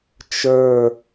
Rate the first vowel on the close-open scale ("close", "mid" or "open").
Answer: mid